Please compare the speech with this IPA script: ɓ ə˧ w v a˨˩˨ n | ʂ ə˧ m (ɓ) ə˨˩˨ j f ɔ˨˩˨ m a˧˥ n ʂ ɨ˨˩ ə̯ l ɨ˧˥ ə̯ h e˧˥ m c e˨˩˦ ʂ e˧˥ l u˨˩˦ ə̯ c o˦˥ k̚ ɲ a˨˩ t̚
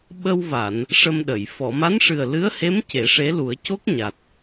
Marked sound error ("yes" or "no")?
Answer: yes